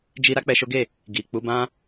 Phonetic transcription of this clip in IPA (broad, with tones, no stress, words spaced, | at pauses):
d͡ʒi˧ ɾa˦k͡pɛ˧ʃo˦ɡe˦˨ | ɡi˨ k͡pu˧bã˦